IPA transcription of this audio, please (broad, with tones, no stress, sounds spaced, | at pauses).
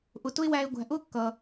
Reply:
ʔ ʊ˩ t ʊ˦ ɪ̯ w æ˨ ɪ̯ ɡʷ æ̤˩ ʔ ʊː˥ kː ʌː˩